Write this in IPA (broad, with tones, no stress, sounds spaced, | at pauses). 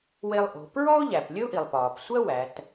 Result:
w e˧ lˠ ʔ o̤˩˧ p ɹ ɔ˥ ʊ̯ ʎ æ˩ p lʲ ə˥ ʊ̯ ʔ i˩ lˠ p ɒː˩ p sʷ ɜ˥ w æ˩˧ t